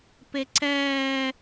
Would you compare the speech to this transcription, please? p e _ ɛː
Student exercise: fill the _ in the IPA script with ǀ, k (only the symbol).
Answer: ǀ